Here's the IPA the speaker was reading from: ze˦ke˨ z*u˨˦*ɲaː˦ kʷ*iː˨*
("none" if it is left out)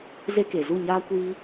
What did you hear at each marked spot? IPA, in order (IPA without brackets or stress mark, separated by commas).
u˦˨, iː˦